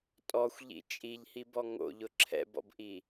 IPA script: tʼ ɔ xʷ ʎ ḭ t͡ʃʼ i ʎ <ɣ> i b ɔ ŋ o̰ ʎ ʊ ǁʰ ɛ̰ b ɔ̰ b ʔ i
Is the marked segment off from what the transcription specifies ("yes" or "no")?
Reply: yes